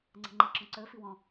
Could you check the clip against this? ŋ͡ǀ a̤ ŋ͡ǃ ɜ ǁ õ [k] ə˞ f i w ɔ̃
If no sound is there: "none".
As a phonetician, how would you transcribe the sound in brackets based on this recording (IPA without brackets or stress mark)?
ǀ